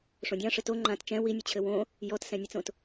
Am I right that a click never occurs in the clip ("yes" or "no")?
no